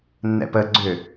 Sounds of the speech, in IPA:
nːɛ̰pə ɡ͡ǀʏ

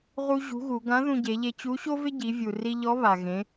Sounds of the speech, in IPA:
ʁu˧ ʑṳ˧˥ɣu˩˧ ɡã˧˥ ðũ˧ɟe˩˧ʎe˧ t͡ɕu˧˥ɕo˥vɪ˥ ɟi˩˧vʲu˩ri˧ʎɔ˧˥ βa˩ɣẽ˩˧

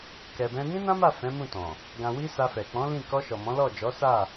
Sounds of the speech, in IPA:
kɛ˨bɛ̃˧ nĩ˦nã˦ma˦˨ fɛ̃˨˦mũ˦˨tɔ̃˨ | ɡã˨wi˧ sa˧fɛ˨ k͡pɔ̃˨˦ lĩ˦˨ kɔ˧ʃɔ˨ mɔ̃˨˦lɔ˦˨ d͡ʒɔ˨˦ sa˦˨

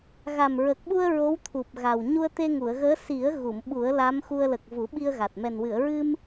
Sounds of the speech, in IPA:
ɣa˨˩mɹə˨˩k̚ɓu˧ə̯ ɹo˧˥wt̪ʰu˨˩p̚ɣa˨˩w ɲu˧ə̯t̪e˧ŋu˨˩˨ə̯ɣəː˧˥ si˨˩˦ə̯ɣu˨˩˨m ɓu˨˩˦ə̯la˧˥mxu˧ə̯ lə˨˩k̚ vu˨˩˦ɓi˧ə̯ɣa˨˩t̚ mɛ˨˩nwɨ˨˩˨ə̯ɹɨ˧m

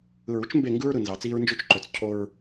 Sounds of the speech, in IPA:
ɯ˨ɹu˦t͡ʃ mbe˦˨ŋɡɯ˦ɹɾɯ˨ nzɑ˨t͡siː˦ɹnd͡ʒy˦t͡ʃǃø˨t͡s cʰo˦ɹ

